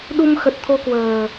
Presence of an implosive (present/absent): present